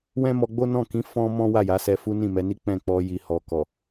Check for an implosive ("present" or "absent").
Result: absent